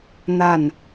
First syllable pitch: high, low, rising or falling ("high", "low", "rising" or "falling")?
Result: falling